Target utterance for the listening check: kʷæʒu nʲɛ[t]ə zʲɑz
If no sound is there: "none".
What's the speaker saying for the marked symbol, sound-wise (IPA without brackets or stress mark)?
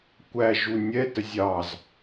t